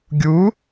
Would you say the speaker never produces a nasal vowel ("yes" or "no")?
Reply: yes